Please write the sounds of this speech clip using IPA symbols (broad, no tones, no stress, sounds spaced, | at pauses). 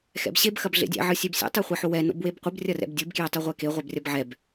x ɛ̰ b ɕ e b x ɐ b ɮ ḛ dʲ ɛ̰ ʕ ɨ sʲ e b sʲ ɛ̰ tˤ e χʷ ɐ ħ o w ɛ n o̰ b w e b qʷ ɨ b rʲ ɐ r ɛ̰ b dʲ ɨ b k j e tˤ ɨ ʁʷ ɛ k e ʁʷ ɛ b rʲ ɐ b ʕ ɛ b